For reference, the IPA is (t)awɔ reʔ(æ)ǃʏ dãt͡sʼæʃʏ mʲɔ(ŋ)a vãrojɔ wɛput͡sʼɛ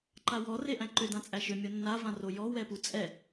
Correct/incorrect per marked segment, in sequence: incorrect: ǃ, incorrect: æ̃, incorrect: nː

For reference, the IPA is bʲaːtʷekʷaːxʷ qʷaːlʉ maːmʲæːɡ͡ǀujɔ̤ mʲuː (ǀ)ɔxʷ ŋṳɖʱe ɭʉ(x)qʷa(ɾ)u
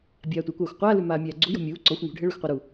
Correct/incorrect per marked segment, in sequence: correct, correct, correct

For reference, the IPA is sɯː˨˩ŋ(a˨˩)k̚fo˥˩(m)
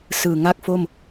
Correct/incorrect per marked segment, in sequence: incorrect: a˥˩, correct

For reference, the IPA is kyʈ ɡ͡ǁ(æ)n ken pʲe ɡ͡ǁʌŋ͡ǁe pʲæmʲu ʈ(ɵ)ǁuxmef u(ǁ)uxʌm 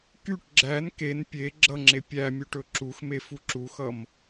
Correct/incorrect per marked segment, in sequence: correct, correct, correct

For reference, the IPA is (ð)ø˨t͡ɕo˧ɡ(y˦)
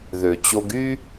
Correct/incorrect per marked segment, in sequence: correct, correct

